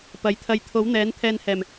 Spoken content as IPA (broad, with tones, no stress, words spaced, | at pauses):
pɐ˨˥jt̪ʰɐ˧j t̪ʰo˨˥wn̪ɛː˨˥n t̪ʰɛː˧nhɛː˨˩m